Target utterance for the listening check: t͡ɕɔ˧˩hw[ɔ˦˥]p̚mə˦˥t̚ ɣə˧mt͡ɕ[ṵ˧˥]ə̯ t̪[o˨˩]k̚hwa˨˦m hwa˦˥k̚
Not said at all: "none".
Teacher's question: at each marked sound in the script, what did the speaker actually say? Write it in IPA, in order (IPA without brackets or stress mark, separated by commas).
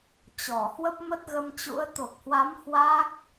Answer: ə˦˥, ṵ˧˥, o˨˩